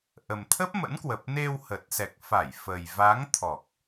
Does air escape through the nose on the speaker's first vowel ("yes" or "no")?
no